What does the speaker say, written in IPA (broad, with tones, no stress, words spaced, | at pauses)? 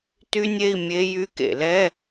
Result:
ty˦˥nʲe˧˥˧i̯ mʲe˦˥ jy˧˥˧kḛ˧˩˧lɛ˧˥˧